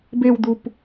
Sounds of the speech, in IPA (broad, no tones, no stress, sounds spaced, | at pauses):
b e w d̪ u p